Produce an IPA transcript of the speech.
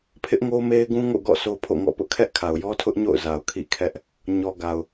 pʰ ɪ˦ ʔ ŋ o˦ m e˦ ɪ̯ ɡ ũ˦ ŋ o̰˦˨ ɡ ɔ̰˦˨ sʰ o˦ pʰ o̰˦˨ ŋ ɔ̰˦˨ p ʊ˦ ʔ kʰ ɛ˦ ʔ kʰ a˨ ʊ̯ j ɔ˦ tʰ ʊ˦ ʔ ɲ o̰˦˨ ʊ̯ z a˨ ʊ̯ kʰ ḭ˦˨ kʰ ɛ˦ ʔ | ɲ ɔ˨ ɡ a˨ ʊ̯

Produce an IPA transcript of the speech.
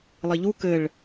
lˠ i ʎ u k ɘ ɭ

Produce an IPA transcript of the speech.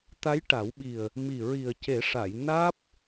t̪ a˧˥ j ʈ a˨˩˦ w ɓ i˨˩ ə̯ | m i˨˩ ɹ i˨˩ ə̯ c e˨˩˦ ʂ a˨˩˨ j n aː˦˥ p̚

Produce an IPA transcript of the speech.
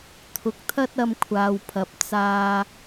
t̪ʰ ʊ˨ k̚ t̪ʰ ɐ˥ t̚ ɐ˧ m kʷʰ aː˨ w pʰ ɐ˨˥ p̚ t͡s aː˧

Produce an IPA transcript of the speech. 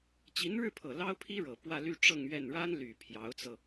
t͡ɕ i˧˥ n ɻ ɻ̩˥˩ pʰ ɤ˨˩ l ɑ˥ ʊ̯ pʰ i˥ ɻ ɤ˨˩ p w ä˥˧ l y˥˧ ʈ͡ʂ ɤ˥˧ ŋ ɥ ɛ˥˩ n ɻ a˥ n l y˨˩ pʰ j ɑ˧˥ ʊ̯ t͡s ɤ˧

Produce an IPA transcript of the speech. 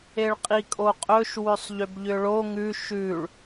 e ɭ qʼ i kʼ o qʼ ɵ ʃ w ʏ sˤ ʎ ʏ b ʎ ʏ ɭ o ŋ ʉ ʃ ʉ ɭ

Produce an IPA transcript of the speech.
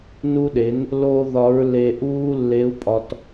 n u˧ ɗ e˩˧ n | l oː˥ ð ɒ˧˥ ɹ l e˧ ʔ uː˥ lː e˧˥ u̯ pʼ ɒ˧ t

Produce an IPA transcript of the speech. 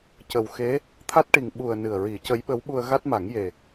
c ə˨˩ w x e˧˥ | t̪ʰ a˦˥ t̚ ʈ i˨˩ ŋ ɓ u˨˩ ə̯ n ɨ˨˩ ə̯ ɹ i˨˩˦ c ə˧˥ j ɓ ə˧˥ w ɓ u˧ ə̯ ɣ a˦˥ t̚ m a˨˩˦ ŋ j e˨˩

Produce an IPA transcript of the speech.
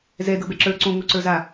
z ɛ d ɤ b ɛ ǁ ə˞ ǀ õ ŋ o ǀ ə˞ z a

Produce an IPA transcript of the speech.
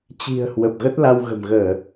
t͡ɕ i̤˨˩ ə̯ h w ə˨˩ p̚ ɣ ə˦˥ t̚ l a˧ w ɣ ə̤˨˩ m ɣ əː˧˩˨

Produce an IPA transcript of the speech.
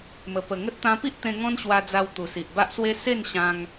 m ə˨˩ p ə˨˩ ŋ ə˦ t̚ t̪ ã˧ p i˦ ʔ t̪ ẽ˧ ŋ ɔ̃˦ n ɕ w a˧ d͡z a˧ w t̪ u˨˩ s i˨ ʔ b a˦ ʔ s w e˦ s e˥˧ n ɕ ã˧ ŋ

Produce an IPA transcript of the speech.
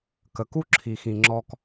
k ə˨ k u˦ ǁʰ i˨ x ĩ˨ ŋ͡ǁ ɔ˧ k

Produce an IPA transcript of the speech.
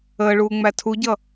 əː ɭ uː ŋ͡m æ tʰ u ɟ ʌ

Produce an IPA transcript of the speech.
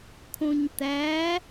kʰ õ ɲ t̪ æ

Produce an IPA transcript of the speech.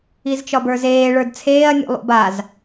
i z t͡ʃ ɒ b ə˞ z eː ɭ ə˞ d t͡sʰ eː ɐ̯ nʲ ṵ lˠ ṵ b a z

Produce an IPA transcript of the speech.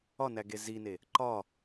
ɒ n æ ɡ e z i n e | ǃ ɒ

